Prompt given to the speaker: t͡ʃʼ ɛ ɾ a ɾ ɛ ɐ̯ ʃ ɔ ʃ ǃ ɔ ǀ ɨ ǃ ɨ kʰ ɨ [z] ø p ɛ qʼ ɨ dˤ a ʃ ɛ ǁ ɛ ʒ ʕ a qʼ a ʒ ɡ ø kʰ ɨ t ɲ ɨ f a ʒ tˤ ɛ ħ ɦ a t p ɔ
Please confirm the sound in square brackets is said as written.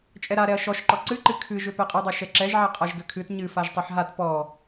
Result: no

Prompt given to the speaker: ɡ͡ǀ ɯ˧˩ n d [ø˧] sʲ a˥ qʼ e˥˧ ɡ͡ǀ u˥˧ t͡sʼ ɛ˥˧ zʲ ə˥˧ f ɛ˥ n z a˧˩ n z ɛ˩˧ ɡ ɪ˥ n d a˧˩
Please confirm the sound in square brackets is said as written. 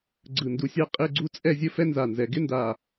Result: no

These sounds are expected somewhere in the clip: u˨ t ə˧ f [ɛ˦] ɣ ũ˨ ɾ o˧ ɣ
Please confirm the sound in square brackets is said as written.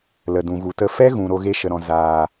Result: yes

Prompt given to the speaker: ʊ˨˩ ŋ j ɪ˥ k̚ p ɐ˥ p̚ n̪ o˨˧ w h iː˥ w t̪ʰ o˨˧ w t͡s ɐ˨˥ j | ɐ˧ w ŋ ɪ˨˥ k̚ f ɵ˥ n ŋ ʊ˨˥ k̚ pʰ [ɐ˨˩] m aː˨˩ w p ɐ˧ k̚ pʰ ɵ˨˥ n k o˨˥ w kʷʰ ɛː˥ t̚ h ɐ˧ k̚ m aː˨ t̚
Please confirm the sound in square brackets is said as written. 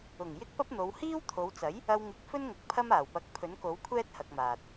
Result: no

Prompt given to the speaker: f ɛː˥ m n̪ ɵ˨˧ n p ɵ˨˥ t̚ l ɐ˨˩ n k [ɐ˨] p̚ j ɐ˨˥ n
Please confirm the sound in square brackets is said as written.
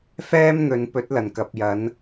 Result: yes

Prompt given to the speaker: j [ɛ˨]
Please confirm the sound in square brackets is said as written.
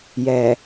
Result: yes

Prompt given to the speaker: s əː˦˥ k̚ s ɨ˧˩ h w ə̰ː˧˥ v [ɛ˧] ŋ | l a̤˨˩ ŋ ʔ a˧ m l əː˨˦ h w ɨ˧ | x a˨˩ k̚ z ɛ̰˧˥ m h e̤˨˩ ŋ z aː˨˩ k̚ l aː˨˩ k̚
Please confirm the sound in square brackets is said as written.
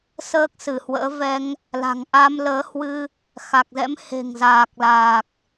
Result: yes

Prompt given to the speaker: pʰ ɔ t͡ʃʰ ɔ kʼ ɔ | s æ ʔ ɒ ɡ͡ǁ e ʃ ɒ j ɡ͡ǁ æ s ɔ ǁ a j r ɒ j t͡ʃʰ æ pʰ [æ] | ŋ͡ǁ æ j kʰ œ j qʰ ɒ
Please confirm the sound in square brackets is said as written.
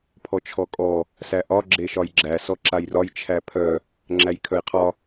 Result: no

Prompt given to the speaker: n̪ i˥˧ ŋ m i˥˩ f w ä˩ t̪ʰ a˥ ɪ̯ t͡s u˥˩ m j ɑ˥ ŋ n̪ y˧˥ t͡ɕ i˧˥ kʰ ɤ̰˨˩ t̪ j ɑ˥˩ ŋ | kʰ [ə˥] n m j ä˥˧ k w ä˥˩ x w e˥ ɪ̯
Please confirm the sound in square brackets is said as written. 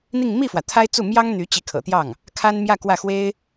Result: no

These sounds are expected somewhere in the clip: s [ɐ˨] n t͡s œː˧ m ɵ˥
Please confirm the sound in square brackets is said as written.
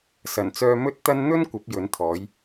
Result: no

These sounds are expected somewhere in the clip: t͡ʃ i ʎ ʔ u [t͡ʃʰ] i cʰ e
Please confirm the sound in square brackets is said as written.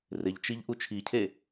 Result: yes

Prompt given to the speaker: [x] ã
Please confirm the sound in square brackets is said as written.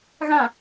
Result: no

